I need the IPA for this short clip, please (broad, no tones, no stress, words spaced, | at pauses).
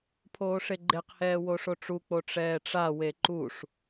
pʰoːʂeɡ͡ǃeqhɛː woʂoʈ͡ʂuk͡po ʈ͡ʂɛːʈ͡ʂawe ǃuʂ